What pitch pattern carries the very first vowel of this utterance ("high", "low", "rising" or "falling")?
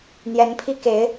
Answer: rising